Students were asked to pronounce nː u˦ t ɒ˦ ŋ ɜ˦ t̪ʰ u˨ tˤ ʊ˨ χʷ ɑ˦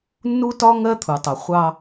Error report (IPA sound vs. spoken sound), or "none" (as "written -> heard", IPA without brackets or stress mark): none